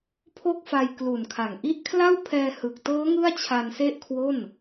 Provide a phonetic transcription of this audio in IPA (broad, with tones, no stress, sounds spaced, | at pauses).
pʰ o˥˩ k̚ f a˧ j k l u˨˩ n kʰ a˨˩ ŋ ʔ i˦˥ ʔ kʰ l a˥˩ w pʰ ɛː˧ h ɯ˨˩ k̚ t ɤː˦˥ ŋ ɯ˥˩ a̯ t͡ɕʰ a˧ n s e˥˩ ʔ kʰ w o˥˩ n